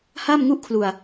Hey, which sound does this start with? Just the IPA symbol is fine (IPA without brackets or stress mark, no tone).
h